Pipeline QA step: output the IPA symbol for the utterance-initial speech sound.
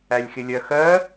æ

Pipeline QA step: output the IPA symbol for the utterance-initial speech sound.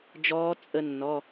d͡ʒ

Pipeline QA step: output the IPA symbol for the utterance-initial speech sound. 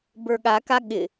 b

